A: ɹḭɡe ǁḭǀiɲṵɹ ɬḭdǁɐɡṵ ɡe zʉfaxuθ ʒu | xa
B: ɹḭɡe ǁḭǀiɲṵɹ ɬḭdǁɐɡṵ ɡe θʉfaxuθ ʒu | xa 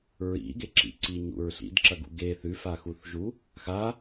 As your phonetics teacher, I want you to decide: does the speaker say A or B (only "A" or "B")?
B